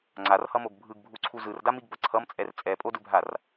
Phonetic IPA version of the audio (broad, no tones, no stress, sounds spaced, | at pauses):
ŋ͡ǀ a r h ʌ m o ɡ bʱ ɯ ɡ bʱ u ǀʰ u z ɯ r d a m i ɡ b ʌ ǀʰ ʌ m t͡sʼ ɛ r t͡sʼ ɛ pʼ o d ɯ bʱ a r